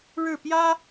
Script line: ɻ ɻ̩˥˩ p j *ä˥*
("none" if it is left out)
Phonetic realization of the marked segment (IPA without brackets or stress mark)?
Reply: ä˥